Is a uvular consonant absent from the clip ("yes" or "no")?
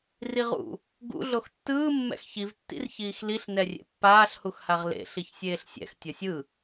no